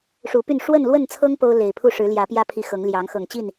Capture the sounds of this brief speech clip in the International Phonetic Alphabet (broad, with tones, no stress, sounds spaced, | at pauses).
ʂ u˨˦ p y˥˨ n ʂ w ə˥˨ n l w ə˥˨ n t͡sʰ ɤ˦ ŋ p o˦ ʊ̯ l e˨˩ ɪ̯ pʰ u˥˨ ʂ ɻ̩˨˦ l j ä˨˦ p j ä˦ pʰ i˨˦ x ɤ˨˦ ŋ l j ɑ˨˦ ŋ x ɤ˨˩ ŋ t͡ɕ i˥˨ n